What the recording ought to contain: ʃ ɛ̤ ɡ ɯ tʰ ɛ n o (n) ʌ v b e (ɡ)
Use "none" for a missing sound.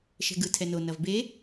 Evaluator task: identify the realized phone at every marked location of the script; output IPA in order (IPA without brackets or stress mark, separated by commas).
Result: n, none